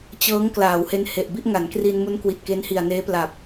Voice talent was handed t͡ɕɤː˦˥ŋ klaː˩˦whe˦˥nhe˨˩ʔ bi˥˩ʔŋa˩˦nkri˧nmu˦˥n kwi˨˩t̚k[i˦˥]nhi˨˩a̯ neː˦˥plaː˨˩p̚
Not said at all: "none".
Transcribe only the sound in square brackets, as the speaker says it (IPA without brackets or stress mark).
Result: e˦˥